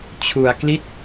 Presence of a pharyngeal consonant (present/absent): absent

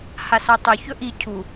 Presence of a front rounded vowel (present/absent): present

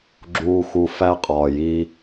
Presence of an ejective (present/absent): present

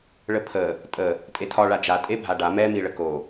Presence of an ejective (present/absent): present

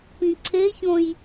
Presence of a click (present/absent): present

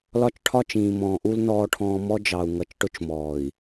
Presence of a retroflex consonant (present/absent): present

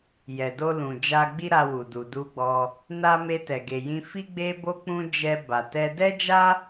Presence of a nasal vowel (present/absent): present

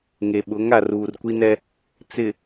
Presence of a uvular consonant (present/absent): absent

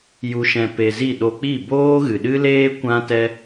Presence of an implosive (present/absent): present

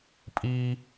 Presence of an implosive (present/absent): absent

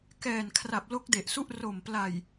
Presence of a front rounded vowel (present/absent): absent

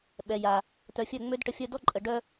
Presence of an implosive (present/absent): present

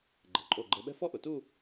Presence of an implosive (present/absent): present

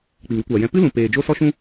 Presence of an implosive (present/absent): absent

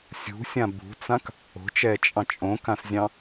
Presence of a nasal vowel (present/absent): present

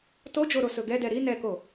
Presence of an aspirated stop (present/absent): absent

